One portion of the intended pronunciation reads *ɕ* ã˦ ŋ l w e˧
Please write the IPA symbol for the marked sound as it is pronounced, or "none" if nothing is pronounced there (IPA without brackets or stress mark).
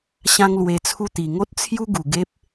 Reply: ɕ